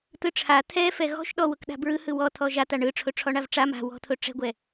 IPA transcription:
t̪ ɯ ʈ͡ʂʰ a t̪ʰ ɛ f ɛ ɣ ɔ̤ ʃ ɗ ɔ w ʊ k ɗ a̤ b ɹ ɯ h ɯ w ɔ t̪ʰ ɔ ʒ a t̪ a ɳ ɯ ʈ͡ʂʰ ʊ ʈ͡ʂʰ ɔ ɳ a v ʈ͡ʂ a m a̤ w ɔ̤ t̪ʰ ʊ ʈ͡ʂ ɛ̤ ɡʷ ɛ

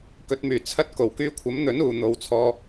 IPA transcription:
k ɵ˨˥ t̚ m yː˨˩ t͡sʰ ɐ˥ t̚ k o˨˩ w k yː˥ kʷʰ ɐ˨˥ m n̪ ɵ˨˥ n uː˨ n̪ o˨ w t͡sʰ ɔː˧

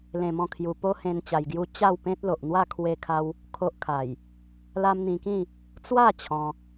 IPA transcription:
l ẽ˧ m ɔ̃˥˧ kʰ j u˧ p o˦ h ẽ˧ n t͡ɕ a˧ j ɡ j u˦ t͡ɕ a˥˧ w p ẽ˦ t̚ l o˨ ʔ n̪ w a˥˧ kʰ w e˧ kʰ a˧ w | kʰ o˦ ʔ kʰ a˨˩ j | l a˦ m n̪ ĩ˧ k ĩ˥˧ | t͡s w a˥˧ t͡ɕʰ ɔ̃˧

